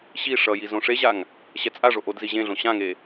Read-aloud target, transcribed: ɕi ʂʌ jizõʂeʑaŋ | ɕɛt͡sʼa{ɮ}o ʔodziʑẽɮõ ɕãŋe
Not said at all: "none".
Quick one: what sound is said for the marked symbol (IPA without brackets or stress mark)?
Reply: ʐ